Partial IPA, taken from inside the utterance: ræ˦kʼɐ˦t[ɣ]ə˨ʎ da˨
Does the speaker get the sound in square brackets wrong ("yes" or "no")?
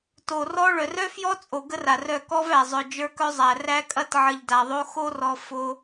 yes